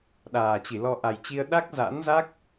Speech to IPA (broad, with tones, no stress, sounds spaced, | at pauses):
ɗ aː˨˩ t͡ɕ i˧˩ l ɔ˧ ʔ a˨˩ j t͡ɕ i˧ ə̯ ɗ a˦˥ k̚ z a̰˧˥ n z a˦˥ k̚